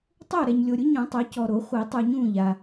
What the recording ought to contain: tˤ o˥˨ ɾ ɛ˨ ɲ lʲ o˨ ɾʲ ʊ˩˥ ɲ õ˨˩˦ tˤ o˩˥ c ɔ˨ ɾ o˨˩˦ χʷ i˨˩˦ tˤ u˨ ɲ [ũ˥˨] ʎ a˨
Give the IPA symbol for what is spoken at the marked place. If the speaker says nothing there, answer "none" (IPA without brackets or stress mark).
ũ˥˨